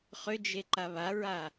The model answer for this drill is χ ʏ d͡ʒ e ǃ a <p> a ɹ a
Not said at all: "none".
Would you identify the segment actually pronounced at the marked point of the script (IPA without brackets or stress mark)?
β